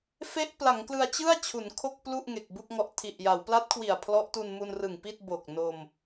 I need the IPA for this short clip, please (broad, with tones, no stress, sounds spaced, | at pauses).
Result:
f e˦˥ ʔ p l a˩˦ ŋ k l ɯ˧ a̯ t͡ɕ ɯ˥˩ a̯ t͡ɕʰ u˩˦ n kʰ o˥˩ k̚ p l u˥˩ ʔ ŋ e˨˩ k̚ b u˥˩ k̚ ŋ ɔ˦˥ ʔ tʰ i˨˩ ʔ j a˩˦ w p l a˦˥ t̚ kʰ w i˨˩ a̯ pʰ l ɔ˦˥ ʔ t u˧ n m u˧ n r ɯ˨˩ ŋ p i˥˩ t̚ b o˨˩ k̚ n o˧ m